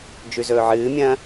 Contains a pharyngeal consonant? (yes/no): yes